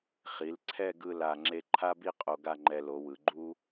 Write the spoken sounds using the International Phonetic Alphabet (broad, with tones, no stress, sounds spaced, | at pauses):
χ i˩˧ l ǀʰ ɛ˥˧ ɡ ɯ˧ l a˨˩ ŋ͡ǁ e˧ ǃʰ a˥ b i˥ qʼ o˧ ɡ a˥˧ ŋ͡ǃ ɛ˧ l o˩˧ w ɯ˩˧ ɡ͡ǃ u˥